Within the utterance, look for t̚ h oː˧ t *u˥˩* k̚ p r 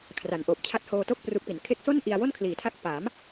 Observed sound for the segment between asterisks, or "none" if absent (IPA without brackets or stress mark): o˥˩